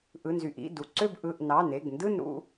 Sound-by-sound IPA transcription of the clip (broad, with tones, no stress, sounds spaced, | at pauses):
ʔ ɯ˩˧˩ n z y˩˧˩ ʔ ḭ˩˧˩ d u˩˧˩ ǀ ø˦˨ b ʔ ɯ˩˧˩ ʔ n ɑ˩˧˩ n e˩˧˩ ɡ n d ɯ˦˨ n ɾ ṵ˦˨